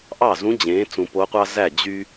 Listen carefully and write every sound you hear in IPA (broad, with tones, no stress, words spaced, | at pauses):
ʔɑ˥˩zũ˧˥ d͡ʑẽː˩˥ t͡sũ˨po˧˥qʷɑ˥ zæ˥˩ d͡ʑy˥